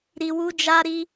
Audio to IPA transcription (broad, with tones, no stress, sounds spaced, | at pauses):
ɾ i˨ w u˧ d͡ʒ a˧ ɾ i˧